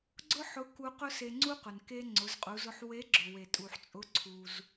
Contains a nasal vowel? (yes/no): no